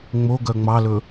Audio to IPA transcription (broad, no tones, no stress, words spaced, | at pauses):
ŋ͡moɡœ ŋ͡mɑlɵ